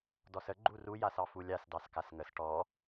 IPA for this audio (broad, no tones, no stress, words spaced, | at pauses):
dɔsə ɡ͡ǃuru jasɑfulʲas dɑskasŋəs ʈɔ